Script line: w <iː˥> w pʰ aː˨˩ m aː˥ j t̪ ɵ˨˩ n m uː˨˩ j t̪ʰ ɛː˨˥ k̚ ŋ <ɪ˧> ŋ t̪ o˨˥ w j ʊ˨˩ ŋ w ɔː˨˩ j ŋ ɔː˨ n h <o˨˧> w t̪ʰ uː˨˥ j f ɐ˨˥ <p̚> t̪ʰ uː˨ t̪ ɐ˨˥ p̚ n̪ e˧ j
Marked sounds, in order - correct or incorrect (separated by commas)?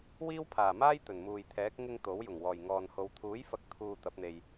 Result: correct, correct, correct, incorrect